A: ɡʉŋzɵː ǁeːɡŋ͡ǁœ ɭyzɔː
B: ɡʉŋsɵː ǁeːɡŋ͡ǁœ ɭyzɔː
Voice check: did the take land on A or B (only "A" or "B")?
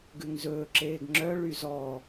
A